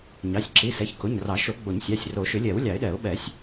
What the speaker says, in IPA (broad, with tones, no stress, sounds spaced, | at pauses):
ɲ ɑ˩˧˩ sʲ ǁ i˩˧˩ s ɛ˩˧˩ ç k ʊ˩˧˩ ɲ r ɑ˨˩˦ ʃ o˨˩˦ ɡ͡b o˨˩˦ ɲ sʲ ɑ˩˧˩ sʲ r o˨˩˦ ʃ ʏ˨˩˦ lʲ ɛ˨˩˦ w lʲ ɑ˨˩˦ ɪ̯ ɗ ɛ˨˩˦ ʊ̯ ɓ ɛ˨˩˦ sʲ